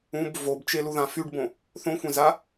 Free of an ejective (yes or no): yes